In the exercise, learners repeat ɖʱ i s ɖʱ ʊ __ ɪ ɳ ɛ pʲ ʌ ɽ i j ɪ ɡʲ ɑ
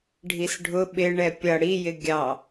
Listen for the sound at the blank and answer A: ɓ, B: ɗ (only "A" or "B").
A